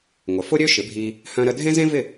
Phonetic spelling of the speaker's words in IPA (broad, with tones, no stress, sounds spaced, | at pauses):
ŋʷ ə˩ f ʊ˥ ɾʲ ø˥ ʃ ɪ˩˥ bʱ i˧ | h œ̃˧ ɾ ə˧ dʱ ẽ˥ z ẽ˥ v ɪ˥˩